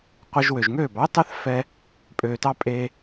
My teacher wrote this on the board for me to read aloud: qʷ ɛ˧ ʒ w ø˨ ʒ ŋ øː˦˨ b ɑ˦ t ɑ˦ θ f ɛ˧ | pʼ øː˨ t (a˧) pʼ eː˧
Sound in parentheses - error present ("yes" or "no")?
yes